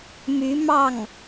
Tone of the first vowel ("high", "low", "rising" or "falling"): rising